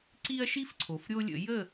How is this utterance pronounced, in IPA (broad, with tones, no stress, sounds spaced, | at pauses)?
ǀ i˦ ɐ̯ ʃ i˦ f ǀʰ o˩ f ɾʲ o˦ lʲ ə̰˧˩˧ j ə˥˨